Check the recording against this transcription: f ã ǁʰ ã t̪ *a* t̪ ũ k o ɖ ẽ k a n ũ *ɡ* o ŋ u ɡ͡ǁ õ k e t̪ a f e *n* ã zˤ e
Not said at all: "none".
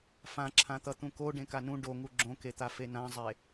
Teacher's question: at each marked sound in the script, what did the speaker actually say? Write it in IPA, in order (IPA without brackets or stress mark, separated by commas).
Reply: ʌ, ɖ, n